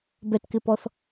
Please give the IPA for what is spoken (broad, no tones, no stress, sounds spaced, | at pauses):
b ɛ t k ɪ p ɔ θ